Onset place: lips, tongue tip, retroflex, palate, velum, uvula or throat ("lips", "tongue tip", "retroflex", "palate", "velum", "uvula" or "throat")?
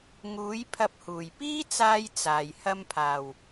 velum